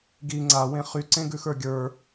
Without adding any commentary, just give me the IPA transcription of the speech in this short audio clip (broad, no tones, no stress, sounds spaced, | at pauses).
ɡ i ŋ͡ǀ a w ẽ χ y ǀ ẽ ɡ ʉ x ə˞ ɡʲ ə˞